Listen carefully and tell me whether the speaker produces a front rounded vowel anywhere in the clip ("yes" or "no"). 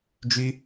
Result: yes